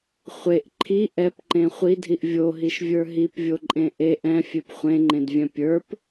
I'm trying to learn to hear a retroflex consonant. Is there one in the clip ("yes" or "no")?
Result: no